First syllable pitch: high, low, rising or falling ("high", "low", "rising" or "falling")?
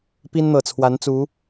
high